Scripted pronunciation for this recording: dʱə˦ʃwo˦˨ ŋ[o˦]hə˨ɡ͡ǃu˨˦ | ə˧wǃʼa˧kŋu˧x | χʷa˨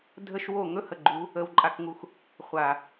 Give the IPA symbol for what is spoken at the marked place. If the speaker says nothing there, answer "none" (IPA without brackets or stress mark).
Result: ɵ˦